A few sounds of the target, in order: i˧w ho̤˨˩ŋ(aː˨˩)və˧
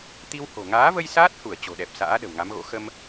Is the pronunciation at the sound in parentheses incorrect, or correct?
incorrect